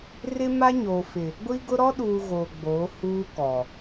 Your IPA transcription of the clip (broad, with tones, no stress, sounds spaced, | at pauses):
r ɪ˦ m a˦ ɲ oː˨ f ɪ˨ | ɡʷ i˦ ɡ ʊ˦ ɾ ɔ˦ ɗ uː˨ ɣ oː˨ ɡ͡b oː˨˦ h uː˦ k ɔ˨